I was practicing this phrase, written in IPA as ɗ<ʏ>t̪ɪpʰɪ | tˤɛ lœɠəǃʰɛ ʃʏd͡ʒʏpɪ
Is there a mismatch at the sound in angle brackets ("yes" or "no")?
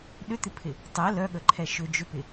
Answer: no